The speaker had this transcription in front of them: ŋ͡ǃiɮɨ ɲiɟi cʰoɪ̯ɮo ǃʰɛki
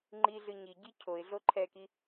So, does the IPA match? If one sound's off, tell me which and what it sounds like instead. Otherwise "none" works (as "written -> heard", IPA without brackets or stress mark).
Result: none